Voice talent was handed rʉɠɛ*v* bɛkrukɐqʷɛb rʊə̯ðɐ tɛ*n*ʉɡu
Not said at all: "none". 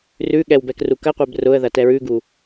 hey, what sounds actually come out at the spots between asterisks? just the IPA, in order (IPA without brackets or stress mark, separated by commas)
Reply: w, ɹ